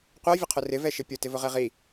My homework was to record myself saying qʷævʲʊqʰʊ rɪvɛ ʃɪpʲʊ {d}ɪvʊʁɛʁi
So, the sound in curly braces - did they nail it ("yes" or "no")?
no